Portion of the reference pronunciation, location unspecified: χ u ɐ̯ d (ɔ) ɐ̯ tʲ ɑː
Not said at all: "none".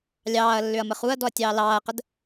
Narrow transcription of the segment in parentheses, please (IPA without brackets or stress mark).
ɔ